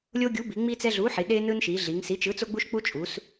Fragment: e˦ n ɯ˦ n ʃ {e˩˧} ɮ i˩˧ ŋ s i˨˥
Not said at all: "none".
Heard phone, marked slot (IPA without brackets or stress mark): i˩˧